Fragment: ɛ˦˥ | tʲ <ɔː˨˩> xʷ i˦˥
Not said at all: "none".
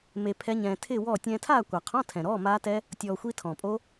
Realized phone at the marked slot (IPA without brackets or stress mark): ɔː˧